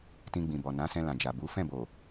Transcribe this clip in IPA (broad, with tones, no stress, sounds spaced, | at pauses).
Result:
t ĩ˧ ɡ͡b ĩ˨ b ɔ˨ n ã˨˦ s ɛ̃˧ l ã˨ d͡ʒ a˨ b u˨˦ f ɛ̃˦˨ b o˨